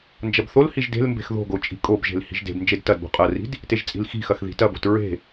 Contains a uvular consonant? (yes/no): yes